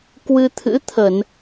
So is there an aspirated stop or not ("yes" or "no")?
yes